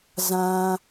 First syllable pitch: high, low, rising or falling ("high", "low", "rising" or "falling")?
high